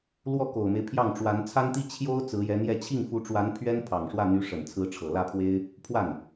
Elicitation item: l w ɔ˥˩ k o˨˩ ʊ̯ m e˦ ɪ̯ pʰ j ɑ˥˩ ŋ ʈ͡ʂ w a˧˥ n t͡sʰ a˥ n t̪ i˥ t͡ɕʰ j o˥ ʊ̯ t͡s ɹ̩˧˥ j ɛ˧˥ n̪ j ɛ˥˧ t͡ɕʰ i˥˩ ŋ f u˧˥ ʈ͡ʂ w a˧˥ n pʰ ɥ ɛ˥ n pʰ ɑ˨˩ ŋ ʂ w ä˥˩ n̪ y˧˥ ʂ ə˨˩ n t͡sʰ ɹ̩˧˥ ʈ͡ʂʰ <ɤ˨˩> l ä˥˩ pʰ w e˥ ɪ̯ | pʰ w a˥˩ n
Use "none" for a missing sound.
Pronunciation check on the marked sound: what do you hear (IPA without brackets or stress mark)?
ɤ˨˩